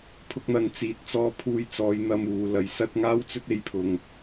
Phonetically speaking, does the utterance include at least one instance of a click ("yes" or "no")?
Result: no